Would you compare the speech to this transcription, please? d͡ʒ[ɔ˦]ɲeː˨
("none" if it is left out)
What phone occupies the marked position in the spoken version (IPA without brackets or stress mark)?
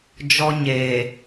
ɔ˦